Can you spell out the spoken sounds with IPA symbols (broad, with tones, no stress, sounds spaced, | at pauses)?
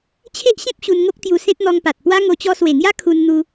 t͡ɕʰ e˦ ʔ ɕ ẽ˦ p̚ ɕ u˧ n ŋ o˦ k̚ t̪ j u˧ s ẽ˦ t̚ n̪ ɔ˧ ŋ p a˨ t̚ p w a˦ ŋ o˧ t͡ɕ ɔ˦ s w e˨˩ ŋ j a˦ kʰ u˧ n n̪ u˧